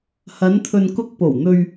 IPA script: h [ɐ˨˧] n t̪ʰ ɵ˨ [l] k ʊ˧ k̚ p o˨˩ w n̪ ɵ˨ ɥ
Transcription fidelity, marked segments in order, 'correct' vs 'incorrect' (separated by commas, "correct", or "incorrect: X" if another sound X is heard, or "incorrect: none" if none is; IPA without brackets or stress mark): correct, incorrect: n